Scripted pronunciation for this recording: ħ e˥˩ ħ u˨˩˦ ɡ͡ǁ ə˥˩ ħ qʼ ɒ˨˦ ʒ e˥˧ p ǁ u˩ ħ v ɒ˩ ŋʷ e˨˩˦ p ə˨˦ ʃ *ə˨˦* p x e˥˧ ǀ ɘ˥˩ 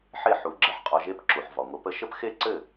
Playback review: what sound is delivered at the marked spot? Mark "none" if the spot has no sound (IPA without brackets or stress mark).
ə˥˧